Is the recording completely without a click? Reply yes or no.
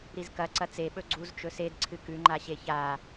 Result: no